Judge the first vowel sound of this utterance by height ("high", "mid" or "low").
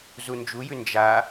high